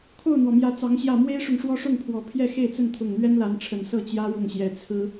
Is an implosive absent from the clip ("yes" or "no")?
yes